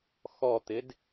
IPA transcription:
x ɔ t̪ ɪ d

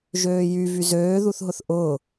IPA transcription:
ʒ øː j y v y z øː ð u θ ɦ ʊ θ ʔ ʊː

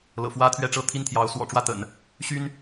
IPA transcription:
l ɤ̰˨˩ f w ä˥ t̪ʰ ɥ ɛ˥˧ ʈ͡ʂ ɤ˥˧ t̪ʰ i˥˩ n t̪ʰ j ɑ˧˥ ʊ̯ s w ɔ̰˨˩ ʈ͡ʂ w ä˥˩ t̪ ə̰˨˩˦ n | ɕ y˥ n

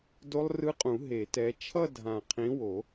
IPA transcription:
d o˦˥ lˠ r ɯ˦˥ qʼ ũ˨˩˦ ɦ e˨˩˦ t ɛ˨˦ t͡ʃʰ ʌ˥˧ dʱ ã˨˩ qʰ ĩ˨˦ w o˨˩˦

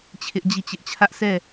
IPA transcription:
t͡ɕʰ ɪ˦ ʔ d͡ʑ i˦˨ t͡ɕ ɪ˦ ʔ t͡ɕʰ ä˦ ʔ s ɛ˦˨

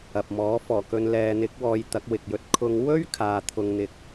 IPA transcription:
ɐ˨ p̚ m ɔː˨˥ f ɔː˨˩ k ɵ˨ n l ɛː˨ n̪ ɪ˨˥ k̚ w ɔː˨˧ j t̪ ɐ˨˥ k̚ w ɪ˨ k̚ j ɵ˧ t̚ kʰ ʊ˨˧ ŋ w ɵ˥ ɥ kʰ aː˨ t̪ʰ ʊ˧ ŋ n̪ ɪ˧ k̚

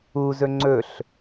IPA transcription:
u z ɵ ŋ͡ǀ ɵ ɬ

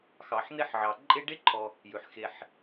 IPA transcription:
x ɑ˨ ħ n̪ e˦ ħ ʕ ɑ˨ ǃʼ e˦ ɖ e˥ ǃʰ ɔ˨ | j ʉ˩ ħ x e˨ ħ

